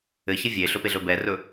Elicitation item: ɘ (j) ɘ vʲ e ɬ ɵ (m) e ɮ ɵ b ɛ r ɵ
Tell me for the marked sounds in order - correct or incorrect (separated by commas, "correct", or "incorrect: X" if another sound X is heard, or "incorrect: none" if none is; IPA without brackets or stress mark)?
incorrect: ç, incorrect: p